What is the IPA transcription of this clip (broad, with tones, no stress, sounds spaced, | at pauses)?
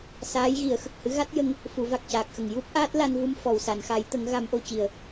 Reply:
s aː˧˥ j ɣ i˨˩˦ ə̯ x ə˨˩ k̚ h ɨ˧˥ ɣ a˦˥ t̚ j ə˧ ŋ | f u˨˩˦ v a˨˩ k̚ c aː˨˩ k̚ x ə˨˩ ŋ j u˦˥ p̚ ʔ aː˦˥ t̚ l a˧ n v u˧ m f ɔ˨˩ w s a˨˩˨ n x a˨˩˦ j t̪ ə˨˩˦ ŋ ɣ a˨˩˦ m ʔ o˨˩ c i˨˩˨ ə̯